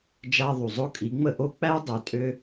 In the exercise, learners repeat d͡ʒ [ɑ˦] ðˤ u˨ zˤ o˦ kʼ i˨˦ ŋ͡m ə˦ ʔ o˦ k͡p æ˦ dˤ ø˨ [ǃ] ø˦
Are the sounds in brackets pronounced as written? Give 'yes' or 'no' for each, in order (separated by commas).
no, no